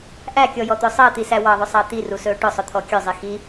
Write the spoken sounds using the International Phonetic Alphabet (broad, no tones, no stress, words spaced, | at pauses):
ʔækʲɔjɔt̪ɵ sˤəːt̪isæ wɑðˤɵsˤəː t̪irusɵː ʈʊsˤʊt̪ʰɔ kʲɵzˤi xi